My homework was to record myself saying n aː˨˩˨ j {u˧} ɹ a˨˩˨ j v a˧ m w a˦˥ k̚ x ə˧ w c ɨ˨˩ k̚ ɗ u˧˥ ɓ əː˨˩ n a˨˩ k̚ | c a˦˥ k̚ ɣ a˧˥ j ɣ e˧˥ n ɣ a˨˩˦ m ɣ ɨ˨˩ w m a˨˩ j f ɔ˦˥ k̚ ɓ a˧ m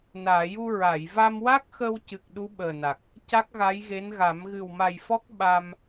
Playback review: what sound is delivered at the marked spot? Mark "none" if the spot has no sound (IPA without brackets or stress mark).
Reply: u˧